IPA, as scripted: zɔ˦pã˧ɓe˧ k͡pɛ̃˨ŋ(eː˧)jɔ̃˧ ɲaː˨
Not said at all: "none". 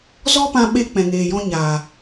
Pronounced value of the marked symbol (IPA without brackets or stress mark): eː˨